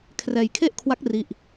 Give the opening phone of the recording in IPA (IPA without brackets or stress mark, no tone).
kʰ